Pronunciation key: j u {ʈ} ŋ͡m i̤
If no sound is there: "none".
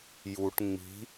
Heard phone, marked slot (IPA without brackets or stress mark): ʈ